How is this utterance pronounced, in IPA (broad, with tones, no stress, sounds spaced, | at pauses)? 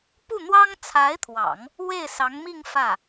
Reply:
p u˥˩ n̪ w ɑ˥ ŋ t͡sʰ a˧˥ ɪ̯ t̪ʰ w ɑ̰˨˩˦ ŋ | w e˥˩ ɪ̯ s ɑ˧˥ ŋ m i˥˧ ŋ f ä˥˩